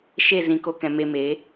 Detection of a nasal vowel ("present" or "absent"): present